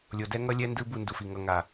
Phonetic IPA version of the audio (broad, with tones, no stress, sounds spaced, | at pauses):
lʲ o˨ d ɛ˦ ŋ ʌ˦ lʲ ɛ˦ n d ɯ˦ b u˦˨ n d u˨ f i˨ ŋ ʌ˨ ŋ a˨